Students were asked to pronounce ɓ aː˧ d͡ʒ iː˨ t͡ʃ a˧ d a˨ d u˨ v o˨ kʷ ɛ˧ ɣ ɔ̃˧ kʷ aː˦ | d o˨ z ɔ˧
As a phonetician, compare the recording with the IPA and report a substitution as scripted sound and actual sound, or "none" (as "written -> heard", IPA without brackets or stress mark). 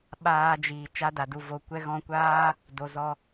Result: none